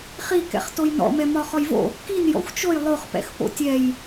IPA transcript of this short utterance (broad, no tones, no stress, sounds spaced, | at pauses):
χ i k ɛ̰ χ t o j n ɔ̰ m ɛ m ɒ χ ɔ j v o̰ | k i n j ɔ̰ xʷ t͡ʃ o j lˠ o χ p ɛ̰ x p o̰ tʲ ɛ j